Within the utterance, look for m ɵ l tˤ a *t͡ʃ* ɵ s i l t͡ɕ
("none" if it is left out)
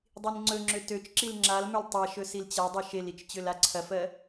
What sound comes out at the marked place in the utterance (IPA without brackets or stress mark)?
ʃ